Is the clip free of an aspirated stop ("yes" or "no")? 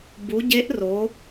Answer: yes